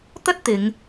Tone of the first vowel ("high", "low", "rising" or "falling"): high